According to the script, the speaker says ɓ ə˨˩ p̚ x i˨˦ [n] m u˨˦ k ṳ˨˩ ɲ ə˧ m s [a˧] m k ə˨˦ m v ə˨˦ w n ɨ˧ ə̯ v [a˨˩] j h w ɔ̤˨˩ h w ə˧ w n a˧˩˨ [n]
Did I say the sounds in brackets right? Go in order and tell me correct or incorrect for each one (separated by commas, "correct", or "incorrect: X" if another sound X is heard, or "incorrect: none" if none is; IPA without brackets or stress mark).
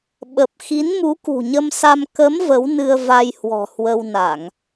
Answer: correct, correct, incorrect: a˧, incorrect: ŋ